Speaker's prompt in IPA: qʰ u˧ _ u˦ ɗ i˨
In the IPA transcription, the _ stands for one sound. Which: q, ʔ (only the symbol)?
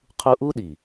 ʔ